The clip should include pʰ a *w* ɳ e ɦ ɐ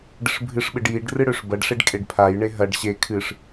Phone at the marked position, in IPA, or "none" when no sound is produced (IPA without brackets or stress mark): j